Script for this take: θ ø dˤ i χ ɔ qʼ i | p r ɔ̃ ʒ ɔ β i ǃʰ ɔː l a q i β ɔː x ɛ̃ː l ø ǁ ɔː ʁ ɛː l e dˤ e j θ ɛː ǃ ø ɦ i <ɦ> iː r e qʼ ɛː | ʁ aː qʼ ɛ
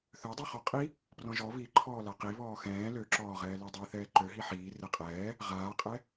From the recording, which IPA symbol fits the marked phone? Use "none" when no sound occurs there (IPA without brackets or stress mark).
ħ